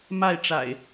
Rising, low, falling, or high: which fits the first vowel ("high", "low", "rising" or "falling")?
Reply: falling